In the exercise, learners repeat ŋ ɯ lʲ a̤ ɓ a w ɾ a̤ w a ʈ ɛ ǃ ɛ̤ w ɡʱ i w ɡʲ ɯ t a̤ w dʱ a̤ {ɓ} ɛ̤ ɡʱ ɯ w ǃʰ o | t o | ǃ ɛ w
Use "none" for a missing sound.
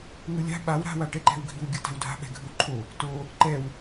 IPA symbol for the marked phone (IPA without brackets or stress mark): ɓ